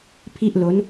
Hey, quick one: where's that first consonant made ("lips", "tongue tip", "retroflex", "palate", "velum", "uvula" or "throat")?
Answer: lips